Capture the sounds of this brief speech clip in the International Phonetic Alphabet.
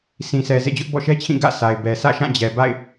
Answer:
sĩ˨sʰɛ˨ zḛ˦˨d͡ʑʊ˦ʔ bɔ̰˦˨ʃɛ˦t͡ɕʰĩ˦˨ ɡä̰˦˨ sa˨ɪ̯bɛ˨ sä̰˦˨ʃã˦˨d͡ʑɛ˨ ba̰˦˨ɪ̯

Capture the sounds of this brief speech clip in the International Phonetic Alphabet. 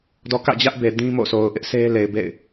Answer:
dɔ˨ kä̰˦˨d͡ʑä˦ʔbe˨ dĩ˦mo̰˦˨sʰo˨ʊ̯ ʔɪ˦ʔsʰe˦le˨ɪ̯bḛ˦˨ɪ̯

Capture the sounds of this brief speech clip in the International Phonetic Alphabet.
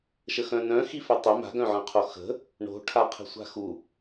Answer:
ʃəxœ̃nœ̃ xifœtˤʏ ma̤ ɡœ̃ʕœ̃qʰoxə̤ | ɳo̤ ʈʰaqʰə̤sʷa̤xu

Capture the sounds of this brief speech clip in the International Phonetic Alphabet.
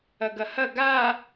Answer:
ɐɡɐhɐ ɡa

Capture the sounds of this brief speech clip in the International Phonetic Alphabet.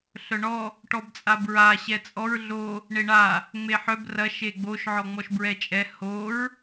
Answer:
ɬœɳɔ | ʈɔbt͡sʼabɹa ɕɛt͡sʼɔɹ ɮo | ɳeɳa | ŋ͡meħœb rɐ ʃeɡ͡boʃ ʕɔŋ͡mɔʃbɹɛt͡ʃʼɛ hoɹ

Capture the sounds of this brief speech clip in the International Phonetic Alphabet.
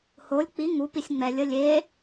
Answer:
holʲ k͡pi ŋupisʲ ŋ͡mɛlʲə lʲe

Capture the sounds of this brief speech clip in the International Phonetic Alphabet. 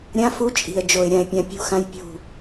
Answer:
ɾʲã˦fu˦t͡ʃʼi̤˨ə̯d͡ʒo˨ɪ̯ ɾʲã˨ɪ̯pʲã˨pʲṳ˦˨xã˦j pʲṳ˦˨

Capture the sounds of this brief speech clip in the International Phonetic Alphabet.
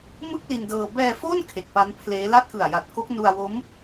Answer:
mɯ˥˩k̚ li˧ndɤː˧ bɛː˧fo˥˩n kʰe˨˩k̚pa˦˥npʰleː˦˥ la˥˩t̚kɯ˨˩a̯ja˨˩t̚ko˦˥k̚ nu˧a̯wo˦˥m

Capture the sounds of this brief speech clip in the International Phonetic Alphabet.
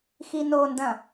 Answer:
xinondɐ̃

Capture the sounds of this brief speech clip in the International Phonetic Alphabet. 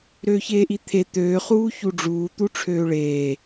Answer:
ɾøːçeːʔit̪ʰe t̪øː χuːçuɖ͡ʐuː t̪uʈ͡ʂʰøːɭeː

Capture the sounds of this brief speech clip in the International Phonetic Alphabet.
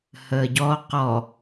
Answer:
həːɟɔ qɔ

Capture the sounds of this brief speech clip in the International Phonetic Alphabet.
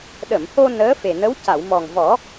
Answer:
ɗə˨˩˨mho˧ nəː˧˥fe˨˩nə˧˥w ca˨˩˨wmɔ˨˩ŋvɔ˨˩˦

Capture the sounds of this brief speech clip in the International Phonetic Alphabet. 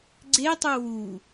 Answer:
ɡ͡ǀetˤu wu

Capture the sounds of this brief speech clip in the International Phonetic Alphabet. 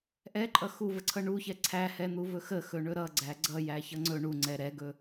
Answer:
ʔɛǃʼʌ xuvəǀʰʌ ɳuçɛ ǀʰæhɛn̪uvɵ xəxɵɳɵ ɾʌɡ͡ǀæ ɡ͡ǀʌjæçʌ ŋ͡ǀɵ ɳuŋ͡ǀɛ ɾɛɡɵ

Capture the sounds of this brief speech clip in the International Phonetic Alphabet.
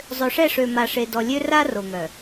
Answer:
zˤø˨ʂɛ˦˨ʂø˨ ma˨ʂe˨dɔ˨lʲø˦ ra˦ ro˨ŋœ˨

